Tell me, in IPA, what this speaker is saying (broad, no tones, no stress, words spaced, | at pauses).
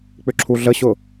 k͡pʏǁʰuɮəɕʊ